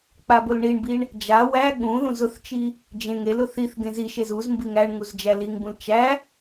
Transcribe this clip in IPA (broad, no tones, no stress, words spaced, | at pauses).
k͡pabʊlɳiɳbiɳ | d͡ʒa wæ ɠũ ðũzʊθt͡ʃi | d͡ʒẽŋ elʊ θiθ ɡẽziʃez uz mbiŋæɳŋuz d͡ʒæliŋbũl t͡ʃæ